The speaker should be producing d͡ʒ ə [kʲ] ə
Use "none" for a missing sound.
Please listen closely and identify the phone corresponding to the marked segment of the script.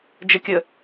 kʲ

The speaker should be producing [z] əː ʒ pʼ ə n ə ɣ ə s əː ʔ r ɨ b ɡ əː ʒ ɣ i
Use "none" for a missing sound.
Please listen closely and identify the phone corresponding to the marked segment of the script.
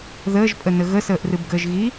ð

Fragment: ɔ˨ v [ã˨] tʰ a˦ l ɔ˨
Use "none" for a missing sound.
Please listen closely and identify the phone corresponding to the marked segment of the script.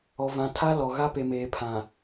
ã˨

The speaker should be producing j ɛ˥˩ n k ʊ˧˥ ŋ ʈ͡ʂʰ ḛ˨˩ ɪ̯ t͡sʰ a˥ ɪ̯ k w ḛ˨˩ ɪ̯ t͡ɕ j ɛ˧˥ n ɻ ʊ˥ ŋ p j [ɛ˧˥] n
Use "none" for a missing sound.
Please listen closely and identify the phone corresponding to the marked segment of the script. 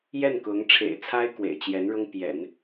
ɛ̰˨˩˦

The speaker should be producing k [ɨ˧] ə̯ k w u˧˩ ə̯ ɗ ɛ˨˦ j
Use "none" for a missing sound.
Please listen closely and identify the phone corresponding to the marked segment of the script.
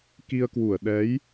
i˧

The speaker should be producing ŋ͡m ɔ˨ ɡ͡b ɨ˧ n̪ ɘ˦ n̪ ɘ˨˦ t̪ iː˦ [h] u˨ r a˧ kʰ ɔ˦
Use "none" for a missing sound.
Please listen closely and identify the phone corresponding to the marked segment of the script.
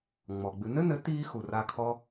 x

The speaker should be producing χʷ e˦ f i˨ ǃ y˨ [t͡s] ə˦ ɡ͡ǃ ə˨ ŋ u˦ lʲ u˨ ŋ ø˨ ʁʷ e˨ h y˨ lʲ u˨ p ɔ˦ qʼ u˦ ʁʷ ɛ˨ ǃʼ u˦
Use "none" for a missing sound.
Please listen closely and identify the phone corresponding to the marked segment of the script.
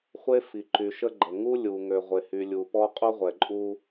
ʃ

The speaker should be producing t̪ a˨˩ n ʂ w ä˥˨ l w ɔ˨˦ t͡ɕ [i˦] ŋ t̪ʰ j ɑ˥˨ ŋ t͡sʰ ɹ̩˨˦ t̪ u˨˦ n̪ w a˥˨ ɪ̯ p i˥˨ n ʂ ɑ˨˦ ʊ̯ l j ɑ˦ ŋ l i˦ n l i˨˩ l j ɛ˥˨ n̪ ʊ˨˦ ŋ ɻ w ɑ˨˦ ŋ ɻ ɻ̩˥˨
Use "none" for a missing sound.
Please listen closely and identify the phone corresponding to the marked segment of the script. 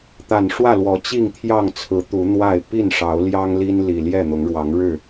i˥˨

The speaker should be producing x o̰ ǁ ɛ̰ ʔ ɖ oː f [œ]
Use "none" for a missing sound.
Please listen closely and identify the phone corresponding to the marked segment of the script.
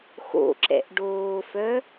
œ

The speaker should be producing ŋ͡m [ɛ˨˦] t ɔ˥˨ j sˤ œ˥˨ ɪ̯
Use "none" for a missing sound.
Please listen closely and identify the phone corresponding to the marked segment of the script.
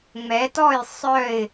ɛ˨˦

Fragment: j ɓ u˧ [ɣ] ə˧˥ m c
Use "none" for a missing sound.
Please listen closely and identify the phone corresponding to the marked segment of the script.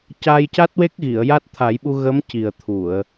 ɣ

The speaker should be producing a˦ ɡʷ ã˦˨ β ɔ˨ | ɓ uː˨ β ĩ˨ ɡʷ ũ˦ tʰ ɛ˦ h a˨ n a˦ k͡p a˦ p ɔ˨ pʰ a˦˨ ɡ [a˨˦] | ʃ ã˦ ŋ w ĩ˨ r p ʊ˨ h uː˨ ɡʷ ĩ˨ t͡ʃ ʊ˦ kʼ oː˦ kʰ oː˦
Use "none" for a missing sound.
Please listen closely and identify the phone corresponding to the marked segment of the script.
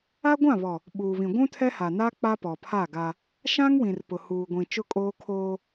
a˦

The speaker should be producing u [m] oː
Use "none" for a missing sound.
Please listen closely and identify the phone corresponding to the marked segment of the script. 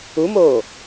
m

